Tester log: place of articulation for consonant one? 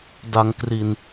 alveolar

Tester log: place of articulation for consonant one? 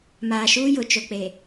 labial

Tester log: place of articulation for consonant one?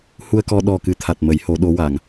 glottal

